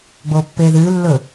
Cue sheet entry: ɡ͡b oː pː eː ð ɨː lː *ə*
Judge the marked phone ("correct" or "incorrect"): incorrect